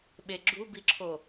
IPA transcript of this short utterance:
ɓeɡ͡ǁubiǁʰo

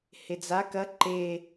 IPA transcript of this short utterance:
hed͡za kɐ ǃe

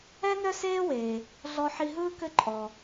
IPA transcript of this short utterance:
ɛ˥nœ˥seː˥weː˩ | ɮɔ˧ħi˧ɦɯː˥ kɘ˥ǃʼɔ˩

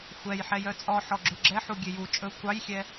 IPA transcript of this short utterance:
xʷɛjħɛjœ t͡sʼɔħɔ ɡ͡ǁʉɡ͡ǁɛħu ɡʲeju t͡ʃʼɵ kʷɑjxʲɛ

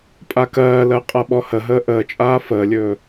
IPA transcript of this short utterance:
pʼakɜːlɜ qʼaɓɔhəɦəː ʔəːt͡ʃʼaː fəːlʲɵː

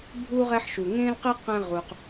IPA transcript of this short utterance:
bʱu˥ ʁɛ˥ħʃu˩ ŋẽ˥lqi˥ qɛ̃˥ʁu˩q

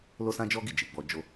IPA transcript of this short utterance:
lo˦sã˦d͡ʒɔ˦ɡi˦˨ d͡ʒi˨ɡ͡bɔ˧d͡ʒo˦

